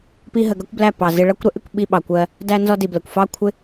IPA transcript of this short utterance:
pi˧ɦə˨ɡʌ˦kʷblæ˦˨ pɑ˨zɪ˧ɭʌ˦kʷ ɾə˨˦ʔɪ˧kʷ ɓi˧ɓɑ˨kʷɜ˧ | dæ˧ nzɔ˧di˨blə˨kʷ fɑ˦kʷʰɪ˦

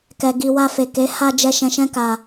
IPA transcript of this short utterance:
kɛ˨ɡi˨ wa˧fe˨ ke˨˦ ha˧d͡ʒɛ˧ ʃɛ̃˧ʃɛ̃˦ka˧

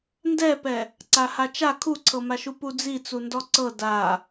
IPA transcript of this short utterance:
ndɛpɛ | ǀahat͡ʃa kʰuǀʰɤmaʃu pud͡zit͡su ndɔǀɤ da

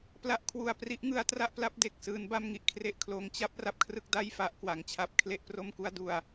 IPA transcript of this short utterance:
pla˦˥ʔkʰwu˨˩a̯pri˦˥ʔ ŋɯ˦˥a̯tra˥˩ʔpla˦˥p̚ de˨˩k̚sɯː˦˥nba˥˩m ŋi˨˩ʔkʰre˥˩ʔkʰloː˧ŋ t͡ɕa˥˩p̚ ra˥˩p̚kʰrɯ˦˥k̚ da˥˩j fa˦˥ʔkwa˨˩ŋt͡ɕʰa˥˩p̚ kʰle˥˩ʔpro˥˩mku˥˩a̯du˧a̯

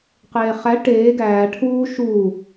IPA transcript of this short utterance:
qeːχæ ʈeː ɡæː ʈʰuː ʃuː

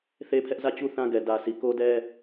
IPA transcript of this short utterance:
θe˦pʰɛ˦ʔ zä˦˨t͡ɕu˦ θã˦ ɡɛ˨ dä˨sʰi˨ko˦dɛ˦

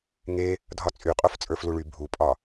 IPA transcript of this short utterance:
ŋe | dʱɒt͡sʼyqʼof t͡sʼə˞fluɭy bʱupʼɒ

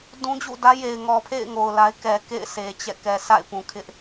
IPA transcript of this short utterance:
dũ˦d͡ʑṵ˦˨dä˦ je˨ɪ̯ ŋɔ˨pʰḛ˦˨ɪ̯ ŋo˨ʊ̯la˦ɪ̯ kɛ˨kḛ˦˨ɪ̯sʰe˨ t͡ɕɛ̰˦˨ kɛ˨sa̰˦˨ɪ̯ pũ˨kʰɪ˦ʔ

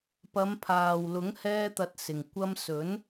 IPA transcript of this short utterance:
pɐ˨˧mpʰaː˨wlʊ˨˥ŋ hɛː˥t̪ɐ˧t̚sɪ˨ŋ kʷɐ˧msɵ˨˥n

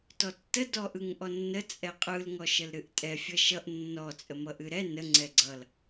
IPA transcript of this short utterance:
tɔtːə dɔʔɯŋʔɔnːə t͡sʼɛqʼɯl ŋɔʃəlɾɨʔtʼɛ fʲʌʃʌʔ nːɔ t͡sʼəmʌʔɨɾɛ nə ŋ͡ǀɛɡ͡ǀʌl

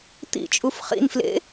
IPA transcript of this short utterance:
t̪ḭt͡ʃʼuf χḭnflḛ

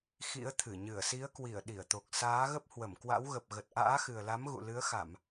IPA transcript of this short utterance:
xḭ˧˥ə̯t̪ʰɨ˧˩ ɲɨ˧˩ə̯si˨˦ə̯kwi˧˩ə̯ ɗi˧˩ə̯t̪o˨˩k̚ saː˨˦ɣə˦˥p̚ hwə˧˩mkwa̰˧˥wɣə˨˩p̚ ɣə˨˩t̚ʔa̰ː˧˥xɨ˨˩ə̯la˨˦m ɣṵ˧˨lɨ˨˦ə̯xa˧˩˨m

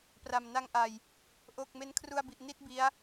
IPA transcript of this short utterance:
pra˨˩mna˧ŋʔa˧j | ʔo˨˩k̚ me˦˥nkʰru˧a̯bi˨˩ʔ ni˥˩t̚bi˦˥a̯

